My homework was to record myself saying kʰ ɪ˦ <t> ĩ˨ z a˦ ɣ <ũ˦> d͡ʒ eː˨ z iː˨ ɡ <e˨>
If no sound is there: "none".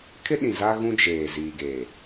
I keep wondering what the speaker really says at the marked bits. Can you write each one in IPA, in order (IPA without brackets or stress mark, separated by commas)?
ɗ, ũ˦, e˨